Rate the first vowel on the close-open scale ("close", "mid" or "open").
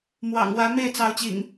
open